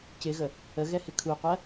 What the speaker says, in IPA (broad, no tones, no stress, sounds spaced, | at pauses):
c ɪ ɣ ə | ə ɣ ɛ h ɪ kʰ u qʷ ɜ